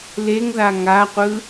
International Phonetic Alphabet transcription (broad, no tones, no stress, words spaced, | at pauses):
leŋða ŋaqʷɯ